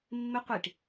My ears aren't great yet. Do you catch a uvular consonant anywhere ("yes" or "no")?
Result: yes